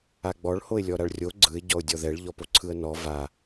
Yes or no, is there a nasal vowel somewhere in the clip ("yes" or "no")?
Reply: no